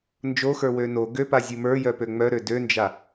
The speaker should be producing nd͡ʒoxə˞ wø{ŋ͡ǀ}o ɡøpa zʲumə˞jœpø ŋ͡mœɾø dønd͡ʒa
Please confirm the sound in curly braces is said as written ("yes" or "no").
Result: no